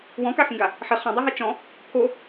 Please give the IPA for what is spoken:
w ɔ̃ k a x ĩ ɡ a | ħ ɪ χ ɔ̃ dˤ a ɦ ɛ t͡ʃ ɔ̃ | pʰ o

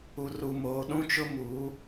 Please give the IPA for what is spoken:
u˨ r u˨ m oː˨ ɗ ũ˦ t͡ʃ ʊ˦ m uː˨˦

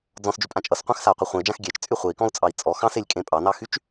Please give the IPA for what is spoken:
d͡z ɔ̃ s d͡ʒ y pʼ ã t͡ʃʼ ʌ s qʷ ã x s a u̯ qʷ ʌ χʷ ẽ i̯ d͡ʒ ã x ɡʲ ɛ t͡ʃ t͡sʼ y χʷ e i̯ k ɔ̃ u̯ t͡sʼ ɑ i̯ t͡sʼ ɔ x ɑ̃ s e lʲ kʼ ẽ pʼ ɑ n ɑ x y t͡ʃ

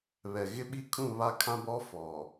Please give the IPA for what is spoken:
β ɛ˨ ɣ ɪ˦ ɓ i˦ kʰ ũ˦˨ β a˦ kʰ ã˦ b ɔ˦ f ɔ˨

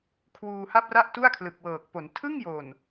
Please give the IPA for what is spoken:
kʰ w uː˧ h a˥˩ p̚ r a˥˩ ʔ t u˥˩ a̯ kʰ l ɯ˨˩ k̚ w ɤː˨˩ k̚ p o˩˦ n tʰ ɯ˥˩ ŋ j o˨˩ n

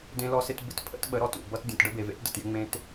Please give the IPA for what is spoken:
d ẽ˦ l ɔ˦ s ɪ˦ t b ɪ˦ t pʰ ə̰˦ t ɓ ə˨˦ ɾ ɔ˨ t ṵ˦˨ b ʌ˦ t dʲ ɔ̃˨ t ɖ ə˦ b e˨ v ḛ˦ t d ə̰˨ t j ɪ˦ ŋ͡m ẽ˦ t

